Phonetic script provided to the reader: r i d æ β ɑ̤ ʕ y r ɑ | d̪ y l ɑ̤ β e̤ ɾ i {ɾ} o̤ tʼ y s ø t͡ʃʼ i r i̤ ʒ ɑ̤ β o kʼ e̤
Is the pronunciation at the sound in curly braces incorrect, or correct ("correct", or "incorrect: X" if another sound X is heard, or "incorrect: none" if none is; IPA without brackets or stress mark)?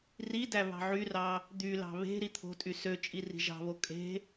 incorrect: t̪ʰ